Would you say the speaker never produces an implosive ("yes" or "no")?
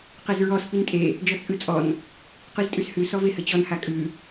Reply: yes